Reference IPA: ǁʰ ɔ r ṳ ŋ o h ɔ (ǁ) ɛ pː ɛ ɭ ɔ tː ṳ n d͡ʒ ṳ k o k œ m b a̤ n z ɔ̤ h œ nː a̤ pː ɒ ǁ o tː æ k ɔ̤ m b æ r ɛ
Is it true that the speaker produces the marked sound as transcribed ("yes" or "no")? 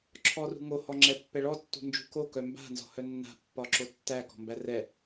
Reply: no